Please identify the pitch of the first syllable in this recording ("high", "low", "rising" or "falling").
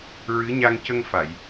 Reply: rising